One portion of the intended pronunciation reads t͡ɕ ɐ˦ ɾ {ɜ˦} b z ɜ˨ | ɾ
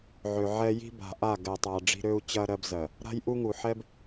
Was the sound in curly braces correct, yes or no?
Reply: yes